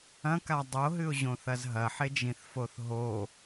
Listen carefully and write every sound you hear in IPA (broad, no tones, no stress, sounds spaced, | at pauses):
ɐ̃ k a dˤ o ɦ ɨ ʊ̯ ʑ õ θ ɐ z ɦ ɐ ħ e d͡ʒ ĩ θ f o θ ɦ o